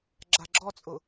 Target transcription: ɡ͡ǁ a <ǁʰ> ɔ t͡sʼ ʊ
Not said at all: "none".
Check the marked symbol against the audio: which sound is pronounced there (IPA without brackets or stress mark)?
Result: ɡ͡ǁ